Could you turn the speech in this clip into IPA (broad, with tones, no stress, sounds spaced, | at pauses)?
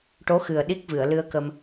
ʈ o˧˥ x ɨ˨˩ ə̯ ɗ i˦˥ k̚ v ɨ˨˩˨ ə̯ l ɨ˧ ə̯ k ə˧ m